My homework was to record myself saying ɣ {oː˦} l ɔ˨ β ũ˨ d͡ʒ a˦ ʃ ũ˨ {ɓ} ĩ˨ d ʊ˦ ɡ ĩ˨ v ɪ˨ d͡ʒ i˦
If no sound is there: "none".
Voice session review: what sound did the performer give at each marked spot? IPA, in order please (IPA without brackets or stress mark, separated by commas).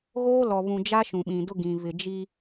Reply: oː˦, ɓ